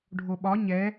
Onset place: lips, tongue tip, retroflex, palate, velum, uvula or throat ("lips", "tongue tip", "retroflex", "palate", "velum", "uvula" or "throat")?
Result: retroflex